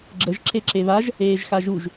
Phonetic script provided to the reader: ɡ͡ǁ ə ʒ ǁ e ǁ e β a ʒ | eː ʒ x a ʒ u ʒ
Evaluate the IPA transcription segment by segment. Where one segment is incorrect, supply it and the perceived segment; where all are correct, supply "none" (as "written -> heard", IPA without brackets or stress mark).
none